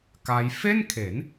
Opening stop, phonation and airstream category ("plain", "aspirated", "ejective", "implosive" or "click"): plain